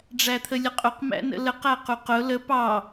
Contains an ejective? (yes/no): yes